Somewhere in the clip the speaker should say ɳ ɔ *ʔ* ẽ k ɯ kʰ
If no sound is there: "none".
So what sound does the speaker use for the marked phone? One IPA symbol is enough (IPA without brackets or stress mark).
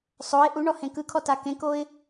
h